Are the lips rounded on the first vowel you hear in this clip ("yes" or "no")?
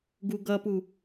yes